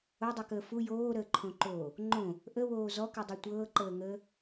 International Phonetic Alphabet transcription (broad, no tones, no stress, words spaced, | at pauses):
odˤʉkəː fu joːɾəːǃʰõǃoː | ŋ͡ǃõ | ʔəwoː zɔkʉdˤo tʷɤːǃəːŋəː